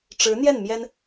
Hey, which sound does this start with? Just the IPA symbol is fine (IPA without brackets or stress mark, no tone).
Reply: ʈ͡ʂ